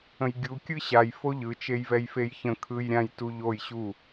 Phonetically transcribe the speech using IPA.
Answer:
ə̃ j ɡʲ u kʲ ɯ ɕ a j f o ʎ ɯ t͡ʃ e j v ɛ j f e j ç ə̃ kʰ ɯ j ɾʲ ã j t u ʎ o j ɕ u

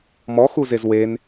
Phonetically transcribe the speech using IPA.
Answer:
m ɔ x u z e z w e n

